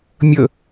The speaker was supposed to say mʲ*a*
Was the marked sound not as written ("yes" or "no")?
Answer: yes